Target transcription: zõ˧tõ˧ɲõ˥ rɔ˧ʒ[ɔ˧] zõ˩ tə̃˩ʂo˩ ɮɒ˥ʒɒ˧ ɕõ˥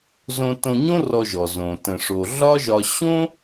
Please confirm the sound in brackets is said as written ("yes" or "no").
no